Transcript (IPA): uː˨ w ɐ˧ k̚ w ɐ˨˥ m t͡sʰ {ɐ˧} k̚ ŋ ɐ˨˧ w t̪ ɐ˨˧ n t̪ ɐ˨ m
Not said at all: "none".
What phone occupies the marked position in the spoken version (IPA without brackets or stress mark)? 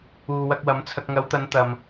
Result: ɐ˧